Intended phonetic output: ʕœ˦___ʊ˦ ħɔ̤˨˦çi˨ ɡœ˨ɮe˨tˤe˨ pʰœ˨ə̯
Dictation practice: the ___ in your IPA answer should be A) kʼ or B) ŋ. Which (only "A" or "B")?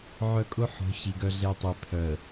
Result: A